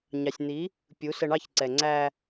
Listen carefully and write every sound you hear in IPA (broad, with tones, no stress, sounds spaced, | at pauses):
ɲ ɑ˨ sʲ n̪ i˨˦ | pʲ u˨˦ s ə˧ ɳ ɑ˦˨ ç ǀ ɛ˨ ŋ͡ǀ æ˧